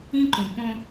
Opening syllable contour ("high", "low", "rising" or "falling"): high